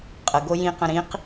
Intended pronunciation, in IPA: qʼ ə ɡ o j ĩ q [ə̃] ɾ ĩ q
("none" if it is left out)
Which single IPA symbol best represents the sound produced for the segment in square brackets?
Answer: ə̃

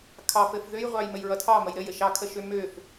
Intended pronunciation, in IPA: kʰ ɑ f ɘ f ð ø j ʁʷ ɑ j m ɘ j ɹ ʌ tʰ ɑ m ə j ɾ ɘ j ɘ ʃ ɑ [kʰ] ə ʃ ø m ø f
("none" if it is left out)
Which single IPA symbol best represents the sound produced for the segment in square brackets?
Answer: kʰ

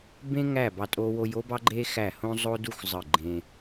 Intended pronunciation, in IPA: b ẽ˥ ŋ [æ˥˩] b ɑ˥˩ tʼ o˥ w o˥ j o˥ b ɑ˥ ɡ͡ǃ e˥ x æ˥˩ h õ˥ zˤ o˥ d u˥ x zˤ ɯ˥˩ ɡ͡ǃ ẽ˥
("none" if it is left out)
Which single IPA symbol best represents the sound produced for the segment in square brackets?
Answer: æ˥˩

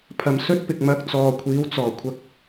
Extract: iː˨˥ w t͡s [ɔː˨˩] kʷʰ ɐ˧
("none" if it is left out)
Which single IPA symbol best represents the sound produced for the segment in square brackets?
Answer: ɔː˨˩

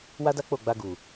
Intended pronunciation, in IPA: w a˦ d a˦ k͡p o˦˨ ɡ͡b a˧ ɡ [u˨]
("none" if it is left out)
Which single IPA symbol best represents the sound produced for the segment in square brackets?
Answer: u˨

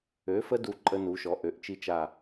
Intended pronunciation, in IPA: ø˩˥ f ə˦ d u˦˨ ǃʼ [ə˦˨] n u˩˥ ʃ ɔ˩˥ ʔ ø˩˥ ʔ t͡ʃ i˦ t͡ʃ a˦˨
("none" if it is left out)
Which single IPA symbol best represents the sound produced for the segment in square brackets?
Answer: ə˦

